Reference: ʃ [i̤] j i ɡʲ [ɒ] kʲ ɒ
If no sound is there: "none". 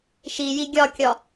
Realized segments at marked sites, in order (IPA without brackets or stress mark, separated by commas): i, ɒ